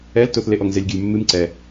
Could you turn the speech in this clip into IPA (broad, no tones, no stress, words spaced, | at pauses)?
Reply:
ɛltoθleʔɔŋ zelʲɡʲəlʲmːɨm ǀɛ